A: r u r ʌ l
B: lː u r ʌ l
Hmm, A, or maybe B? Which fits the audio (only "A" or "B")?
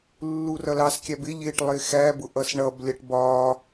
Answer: B